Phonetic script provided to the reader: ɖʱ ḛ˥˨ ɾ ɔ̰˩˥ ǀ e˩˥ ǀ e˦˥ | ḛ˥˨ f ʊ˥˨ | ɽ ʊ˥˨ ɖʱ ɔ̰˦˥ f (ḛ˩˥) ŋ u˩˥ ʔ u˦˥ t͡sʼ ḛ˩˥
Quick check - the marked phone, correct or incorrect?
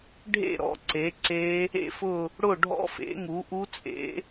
correct